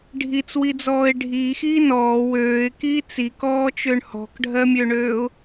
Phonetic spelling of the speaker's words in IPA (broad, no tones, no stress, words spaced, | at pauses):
ɖʱit͡swid͡zɔːɪ̯ ɖʱiːxiː nɔː wøːɪ̯kiː t͡sikɔːt͡ʃøɳ hɔ̤kɖʱɜmʲøɳøːʊ̯